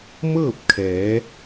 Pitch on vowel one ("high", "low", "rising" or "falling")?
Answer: falling